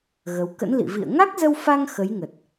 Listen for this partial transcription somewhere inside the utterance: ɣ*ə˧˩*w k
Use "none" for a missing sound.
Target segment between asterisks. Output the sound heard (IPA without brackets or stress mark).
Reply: ə˨˦